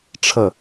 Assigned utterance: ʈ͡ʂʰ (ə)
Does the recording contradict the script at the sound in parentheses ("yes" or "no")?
no